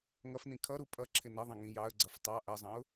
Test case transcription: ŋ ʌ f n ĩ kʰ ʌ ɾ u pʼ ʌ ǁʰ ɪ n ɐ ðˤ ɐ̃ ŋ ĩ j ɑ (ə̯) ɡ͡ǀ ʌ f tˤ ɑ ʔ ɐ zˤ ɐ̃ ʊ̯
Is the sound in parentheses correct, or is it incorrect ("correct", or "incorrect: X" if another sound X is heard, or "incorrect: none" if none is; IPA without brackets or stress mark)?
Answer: correct